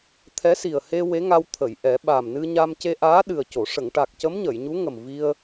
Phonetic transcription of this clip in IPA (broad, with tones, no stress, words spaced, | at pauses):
t̪ʰɛ˧˥si˨˩ə̯he˧ we˧˥ŋa˧wt̪ʰə˨˩˨jʔɛ˨˩˦ ɓa˨˩mnɨ˧ɲa˧m ce˧ʔaː˧˥ ɗɨ˨˩ə̯co˨˩˨ ʂə˨˩˨ŋʈa˨˩k̚cə˧˥m ɲə˨˩˨jɲu˧˥ŋə˨˩m vi˧ə̯